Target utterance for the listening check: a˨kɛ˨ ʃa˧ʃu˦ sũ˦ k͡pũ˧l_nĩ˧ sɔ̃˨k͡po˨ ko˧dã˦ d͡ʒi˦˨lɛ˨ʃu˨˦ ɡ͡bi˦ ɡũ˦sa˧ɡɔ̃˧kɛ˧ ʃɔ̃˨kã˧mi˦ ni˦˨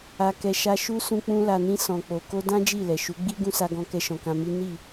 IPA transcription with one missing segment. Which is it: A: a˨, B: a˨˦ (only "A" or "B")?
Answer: A